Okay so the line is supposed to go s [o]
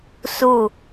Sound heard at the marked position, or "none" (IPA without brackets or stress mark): u